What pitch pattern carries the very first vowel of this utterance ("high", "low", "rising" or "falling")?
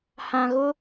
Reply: low